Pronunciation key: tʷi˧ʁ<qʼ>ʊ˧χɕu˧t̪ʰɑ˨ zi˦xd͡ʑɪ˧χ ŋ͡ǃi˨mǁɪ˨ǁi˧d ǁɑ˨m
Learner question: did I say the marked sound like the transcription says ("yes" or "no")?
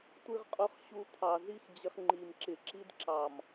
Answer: yes